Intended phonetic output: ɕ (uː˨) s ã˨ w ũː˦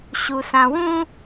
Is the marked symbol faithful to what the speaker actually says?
no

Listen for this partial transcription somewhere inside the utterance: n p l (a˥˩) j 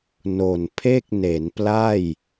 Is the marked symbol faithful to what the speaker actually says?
yes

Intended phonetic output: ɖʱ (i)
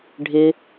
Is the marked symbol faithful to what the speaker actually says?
no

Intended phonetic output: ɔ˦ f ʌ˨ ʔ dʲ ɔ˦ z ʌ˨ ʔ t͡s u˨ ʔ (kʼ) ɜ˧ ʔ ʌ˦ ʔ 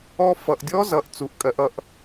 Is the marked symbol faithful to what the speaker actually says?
yes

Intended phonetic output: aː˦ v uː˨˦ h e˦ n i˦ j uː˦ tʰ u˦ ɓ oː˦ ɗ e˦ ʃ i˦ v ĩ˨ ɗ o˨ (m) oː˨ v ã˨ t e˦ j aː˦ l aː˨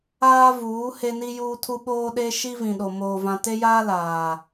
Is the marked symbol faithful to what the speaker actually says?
yes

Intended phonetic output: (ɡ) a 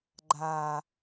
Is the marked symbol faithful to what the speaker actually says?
no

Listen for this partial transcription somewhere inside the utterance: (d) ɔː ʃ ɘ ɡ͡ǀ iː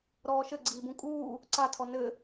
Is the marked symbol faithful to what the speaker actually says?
no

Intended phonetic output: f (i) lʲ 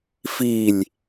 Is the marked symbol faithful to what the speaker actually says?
yes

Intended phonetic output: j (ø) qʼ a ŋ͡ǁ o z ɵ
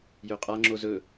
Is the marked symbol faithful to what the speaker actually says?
yes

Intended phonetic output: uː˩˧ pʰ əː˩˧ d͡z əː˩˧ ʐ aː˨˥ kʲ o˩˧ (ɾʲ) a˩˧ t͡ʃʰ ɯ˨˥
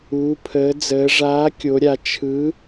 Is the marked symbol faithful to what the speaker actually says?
yes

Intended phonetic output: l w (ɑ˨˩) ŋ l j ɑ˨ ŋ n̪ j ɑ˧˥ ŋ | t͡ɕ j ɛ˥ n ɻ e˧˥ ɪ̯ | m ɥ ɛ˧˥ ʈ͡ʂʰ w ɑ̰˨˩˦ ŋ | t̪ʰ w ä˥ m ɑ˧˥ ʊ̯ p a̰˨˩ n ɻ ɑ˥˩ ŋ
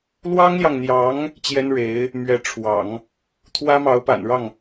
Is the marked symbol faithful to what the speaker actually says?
no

